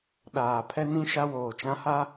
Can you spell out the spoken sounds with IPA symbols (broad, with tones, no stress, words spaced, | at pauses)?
ɗaː˨ pʰɛ˦nĩ˦ ʃa˦woː˨t͡ʃã˦ha˦